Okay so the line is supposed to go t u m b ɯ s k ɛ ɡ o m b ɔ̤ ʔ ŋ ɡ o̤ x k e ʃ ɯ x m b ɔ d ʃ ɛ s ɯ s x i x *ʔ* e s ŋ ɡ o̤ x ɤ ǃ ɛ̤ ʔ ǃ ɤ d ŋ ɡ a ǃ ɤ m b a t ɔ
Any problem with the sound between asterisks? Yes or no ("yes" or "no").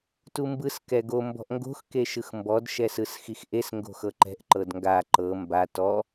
no